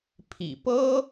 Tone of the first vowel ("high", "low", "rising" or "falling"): low